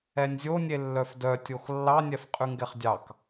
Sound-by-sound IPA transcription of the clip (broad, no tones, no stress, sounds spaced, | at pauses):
ɛ nʲ zʲ o nʲ e lː œ f d œ tʲ o x lː ɑ nʲ ɛ f qʼ ʉ ŋ ɡ ɛ χ dʲ ɑ k